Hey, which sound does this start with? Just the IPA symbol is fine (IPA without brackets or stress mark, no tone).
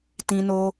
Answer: t